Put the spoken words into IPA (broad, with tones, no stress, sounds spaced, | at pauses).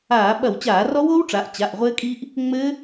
aː˧˩˧ ɓ ɐ˧˩˧ w t͡ɕ aː˧˩˧ r ɔ˦˥ w oː˦˥ w ʈ͡ʂ a˩˧ ʔ t͡ɕ a˩˧˩ ʔ ʁʷ ɘː˦˥ kʼ iː˦˥ ʔ | ŋ͡m ɘː˦˥